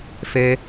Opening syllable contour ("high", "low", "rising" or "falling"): high